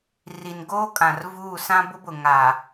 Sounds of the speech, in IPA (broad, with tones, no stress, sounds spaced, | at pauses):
r i˨ n ɡ oː˦ kʼ ã˨ r v uː˦˨ s ã˦ b ʊ˦ b ʊ˨ ŋ a˨